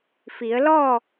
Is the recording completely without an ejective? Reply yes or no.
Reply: yes